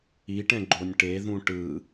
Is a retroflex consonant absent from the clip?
no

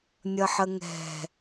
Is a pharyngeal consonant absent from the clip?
no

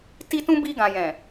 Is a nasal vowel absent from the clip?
no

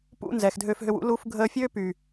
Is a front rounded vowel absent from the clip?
no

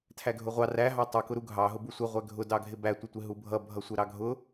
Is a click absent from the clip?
yes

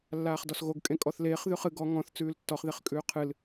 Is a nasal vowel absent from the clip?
no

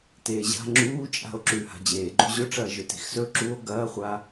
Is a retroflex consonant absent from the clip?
no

